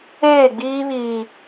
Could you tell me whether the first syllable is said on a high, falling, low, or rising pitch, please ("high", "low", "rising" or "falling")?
falling